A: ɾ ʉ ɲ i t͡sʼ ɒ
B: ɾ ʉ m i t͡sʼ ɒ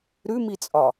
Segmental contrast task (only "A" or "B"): B